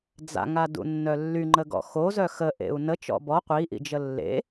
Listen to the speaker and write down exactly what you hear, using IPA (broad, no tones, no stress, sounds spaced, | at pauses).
d͡z a̰ ŋ a d ṵ nː œ lː y ŋ͡ǃ ə ɡ ɔ̰ x o z œ x ə ʔ ḛ u̯ n ə t͡ʃ ɔ̰ b ɔ qʷ i ʔ ḭ d͡ʒ ə lː ḛ